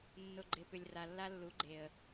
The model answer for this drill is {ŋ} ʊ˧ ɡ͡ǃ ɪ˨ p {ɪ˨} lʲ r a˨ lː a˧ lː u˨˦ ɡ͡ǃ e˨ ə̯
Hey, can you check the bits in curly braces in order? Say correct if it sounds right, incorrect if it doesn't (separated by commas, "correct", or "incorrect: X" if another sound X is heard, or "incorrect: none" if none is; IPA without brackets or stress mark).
incorrect: nː, incorrect: ʏ˨